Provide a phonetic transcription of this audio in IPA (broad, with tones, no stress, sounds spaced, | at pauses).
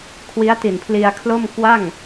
kʰ w i˦˥ a̯ t i˨˩ n pʰ l i˧ a̯ kʰ l o˥˩ m k w a˥˩ ŋ